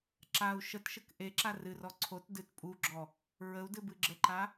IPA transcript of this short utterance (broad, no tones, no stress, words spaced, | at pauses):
ǁau̯ ʃətʃək ʔeǁa rɨrɔ ǀʰot dɨt pʼuɡ͡ǁɔ | ɹəu̯dɨbɨ ɡ͡ǁəǃa